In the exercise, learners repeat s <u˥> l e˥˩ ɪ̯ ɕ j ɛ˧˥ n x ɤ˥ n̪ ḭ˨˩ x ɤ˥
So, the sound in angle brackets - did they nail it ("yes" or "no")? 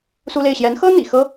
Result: yes